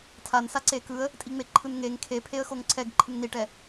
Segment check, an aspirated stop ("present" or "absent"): present